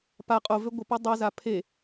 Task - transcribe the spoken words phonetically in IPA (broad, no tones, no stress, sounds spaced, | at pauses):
p a qʼ o v ø ɡʷ ə p o dˤ ʌ z a pʰ e